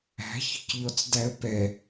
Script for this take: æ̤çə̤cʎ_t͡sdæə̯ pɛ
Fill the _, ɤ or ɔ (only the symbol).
ɔ